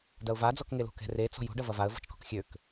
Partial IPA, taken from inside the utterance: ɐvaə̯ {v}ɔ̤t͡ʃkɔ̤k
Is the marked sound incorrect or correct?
correct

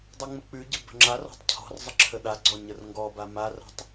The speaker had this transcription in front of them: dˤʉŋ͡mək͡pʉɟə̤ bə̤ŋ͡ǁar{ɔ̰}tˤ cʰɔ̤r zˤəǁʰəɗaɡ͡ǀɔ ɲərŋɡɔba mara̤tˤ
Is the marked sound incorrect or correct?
incorrect: ɔ̤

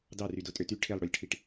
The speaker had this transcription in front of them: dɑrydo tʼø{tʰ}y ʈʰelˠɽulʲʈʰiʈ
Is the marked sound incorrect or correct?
incorrect: t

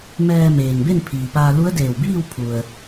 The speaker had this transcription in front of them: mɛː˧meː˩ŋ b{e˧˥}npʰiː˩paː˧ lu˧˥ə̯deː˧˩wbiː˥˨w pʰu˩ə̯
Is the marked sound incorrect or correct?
incorrect: e˥˨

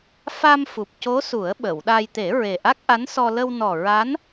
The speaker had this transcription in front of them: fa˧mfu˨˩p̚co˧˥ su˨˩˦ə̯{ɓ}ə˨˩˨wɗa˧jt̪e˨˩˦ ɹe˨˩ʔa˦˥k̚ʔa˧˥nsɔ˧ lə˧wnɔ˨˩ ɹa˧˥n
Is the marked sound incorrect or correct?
correct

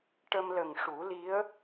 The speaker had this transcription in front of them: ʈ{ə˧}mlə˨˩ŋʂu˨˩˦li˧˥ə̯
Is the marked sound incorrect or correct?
correct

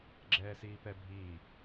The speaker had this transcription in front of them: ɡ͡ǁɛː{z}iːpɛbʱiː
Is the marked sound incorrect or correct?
incorrect: s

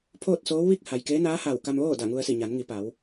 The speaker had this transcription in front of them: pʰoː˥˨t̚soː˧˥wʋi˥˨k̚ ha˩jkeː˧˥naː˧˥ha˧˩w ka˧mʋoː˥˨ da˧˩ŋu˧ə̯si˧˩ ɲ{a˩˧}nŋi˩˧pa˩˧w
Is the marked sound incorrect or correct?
correct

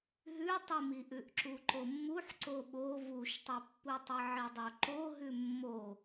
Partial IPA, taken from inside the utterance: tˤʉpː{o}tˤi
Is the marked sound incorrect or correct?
incorrect: u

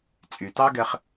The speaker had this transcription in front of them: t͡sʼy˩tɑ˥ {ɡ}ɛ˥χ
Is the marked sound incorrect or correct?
correct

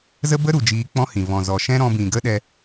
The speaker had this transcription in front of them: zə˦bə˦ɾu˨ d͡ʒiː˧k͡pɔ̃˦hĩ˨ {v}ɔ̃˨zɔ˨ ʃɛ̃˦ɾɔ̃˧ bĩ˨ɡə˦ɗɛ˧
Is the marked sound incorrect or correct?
correct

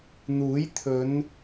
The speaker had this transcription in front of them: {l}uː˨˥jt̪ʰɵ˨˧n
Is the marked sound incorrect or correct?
incorrect: n̪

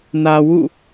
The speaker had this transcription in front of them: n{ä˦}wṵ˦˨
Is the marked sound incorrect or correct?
incorrect: ä˨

